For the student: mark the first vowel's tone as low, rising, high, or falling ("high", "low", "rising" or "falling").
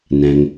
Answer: low